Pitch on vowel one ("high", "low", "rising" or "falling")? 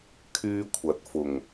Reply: high